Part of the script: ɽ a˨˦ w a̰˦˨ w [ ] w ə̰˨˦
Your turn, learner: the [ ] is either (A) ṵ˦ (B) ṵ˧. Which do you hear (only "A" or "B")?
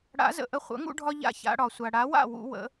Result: B